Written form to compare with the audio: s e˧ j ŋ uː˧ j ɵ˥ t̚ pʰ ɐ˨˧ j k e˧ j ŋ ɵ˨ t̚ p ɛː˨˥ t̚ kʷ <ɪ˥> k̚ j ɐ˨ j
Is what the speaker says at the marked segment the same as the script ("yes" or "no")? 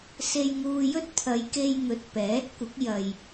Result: no